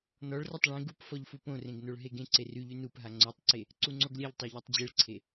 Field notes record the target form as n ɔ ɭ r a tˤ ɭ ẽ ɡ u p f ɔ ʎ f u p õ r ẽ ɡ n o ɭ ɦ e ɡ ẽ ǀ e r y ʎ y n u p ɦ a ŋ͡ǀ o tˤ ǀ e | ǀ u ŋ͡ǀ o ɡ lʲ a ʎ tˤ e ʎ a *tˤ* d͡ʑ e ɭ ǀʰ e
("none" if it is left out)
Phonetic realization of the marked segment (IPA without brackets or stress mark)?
tˤ